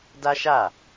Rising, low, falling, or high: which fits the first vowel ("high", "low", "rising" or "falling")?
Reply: high